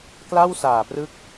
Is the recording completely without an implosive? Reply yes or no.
yes